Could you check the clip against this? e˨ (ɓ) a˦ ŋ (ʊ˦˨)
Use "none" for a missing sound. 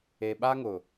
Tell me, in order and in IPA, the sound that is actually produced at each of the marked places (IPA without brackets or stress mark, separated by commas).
ɓ, ʊ˨